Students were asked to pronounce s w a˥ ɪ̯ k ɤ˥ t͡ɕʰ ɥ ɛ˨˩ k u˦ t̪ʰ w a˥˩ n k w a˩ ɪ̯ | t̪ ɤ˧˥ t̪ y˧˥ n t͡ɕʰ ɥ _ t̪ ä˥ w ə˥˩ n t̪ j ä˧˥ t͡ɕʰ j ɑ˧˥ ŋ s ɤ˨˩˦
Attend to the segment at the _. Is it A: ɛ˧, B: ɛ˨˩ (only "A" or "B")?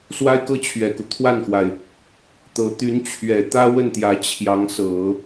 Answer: B